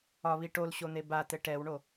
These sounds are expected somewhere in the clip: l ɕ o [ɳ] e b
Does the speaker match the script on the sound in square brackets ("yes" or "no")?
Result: no